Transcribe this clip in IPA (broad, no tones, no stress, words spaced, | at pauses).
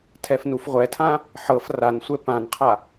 tʰɛfnufʁʷɛtʰã | ħɤf ransʷɛ pãnqʰa